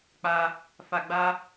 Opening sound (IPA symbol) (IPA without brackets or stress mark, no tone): k͡p